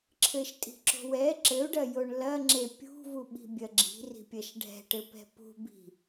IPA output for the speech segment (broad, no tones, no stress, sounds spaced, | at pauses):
ǁʰ ɘ ʃ tʼ i̤ ǁ o̤ w ɛ ǁ ɘ u̯ ɖ ɐ j o ɳ l ɐ ŋ͡ǁ e pʲ ṳ v u ɓ i̤ bʲ ɐ ɡ͡ǁ i̤ r i̤ pʲ ɐ ʃ ɖʱ ɛ̤ ʈ ɘ p ɛ̤ p ṳ b i̤